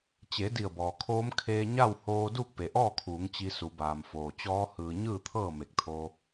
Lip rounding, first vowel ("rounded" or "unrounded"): unrounded